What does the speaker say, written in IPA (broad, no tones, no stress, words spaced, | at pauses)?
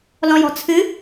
lɔ̃jɔ̤t͡sʰɨ